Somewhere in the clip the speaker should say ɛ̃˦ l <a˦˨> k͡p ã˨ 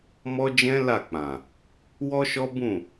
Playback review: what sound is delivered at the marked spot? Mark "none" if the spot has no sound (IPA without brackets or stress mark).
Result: a˦˨